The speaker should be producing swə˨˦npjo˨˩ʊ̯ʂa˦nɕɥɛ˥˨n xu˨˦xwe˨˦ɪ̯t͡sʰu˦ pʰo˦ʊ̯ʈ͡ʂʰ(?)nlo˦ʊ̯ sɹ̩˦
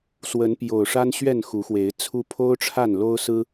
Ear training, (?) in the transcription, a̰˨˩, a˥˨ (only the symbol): a˥˨